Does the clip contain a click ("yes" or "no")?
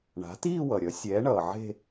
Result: no